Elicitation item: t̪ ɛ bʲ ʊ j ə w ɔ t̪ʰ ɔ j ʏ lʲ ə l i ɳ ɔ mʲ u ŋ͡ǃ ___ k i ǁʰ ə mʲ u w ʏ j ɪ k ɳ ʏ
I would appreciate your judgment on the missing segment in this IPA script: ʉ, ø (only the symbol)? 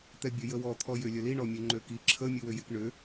ø